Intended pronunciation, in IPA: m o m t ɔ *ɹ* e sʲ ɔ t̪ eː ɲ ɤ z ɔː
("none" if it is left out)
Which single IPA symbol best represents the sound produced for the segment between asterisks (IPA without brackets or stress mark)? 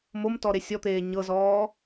ɾ